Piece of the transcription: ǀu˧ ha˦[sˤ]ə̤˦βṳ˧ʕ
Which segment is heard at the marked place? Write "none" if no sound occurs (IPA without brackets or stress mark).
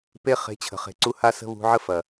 s